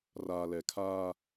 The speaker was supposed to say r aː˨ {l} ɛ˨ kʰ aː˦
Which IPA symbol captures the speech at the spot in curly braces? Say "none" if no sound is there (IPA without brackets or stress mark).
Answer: l